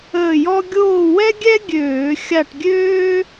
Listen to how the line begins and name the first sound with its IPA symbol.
əː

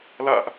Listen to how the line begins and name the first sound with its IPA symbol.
l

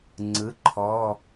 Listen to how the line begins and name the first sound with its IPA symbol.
ŋ͡ǀ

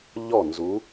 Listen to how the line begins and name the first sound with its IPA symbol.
ʎ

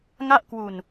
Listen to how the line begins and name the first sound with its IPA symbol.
ŋ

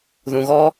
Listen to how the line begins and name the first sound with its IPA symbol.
ð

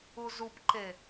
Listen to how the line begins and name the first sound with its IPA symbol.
u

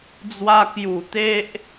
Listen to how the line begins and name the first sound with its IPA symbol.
d͡z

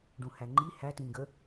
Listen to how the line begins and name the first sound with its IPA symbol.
ɖ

